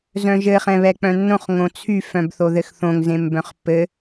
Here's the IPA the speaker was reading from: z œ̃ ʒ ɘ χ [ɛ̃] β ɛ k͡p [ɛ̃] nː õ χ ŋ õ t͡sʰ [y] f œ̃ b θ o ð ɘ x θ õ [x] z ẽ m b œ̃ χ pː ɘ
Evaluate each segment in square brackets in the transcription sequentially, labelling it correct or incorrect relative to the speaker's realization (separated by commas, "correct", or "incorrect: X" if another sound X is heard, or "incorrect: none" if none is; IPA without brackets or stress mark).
correct, incorrect: œ̃, correct, incorrect: ŋ